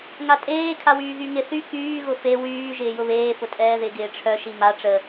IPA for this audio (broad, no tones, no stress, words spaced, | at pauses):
ŋatʼeː kʰawyːɣyŋɪ θy kyː ɣʊfe wyː ʒɪːjʊβeː fʊtʼɛːðɪ ɡɪːʈ͡ʂʰœ ʃima ʈ͡ʂə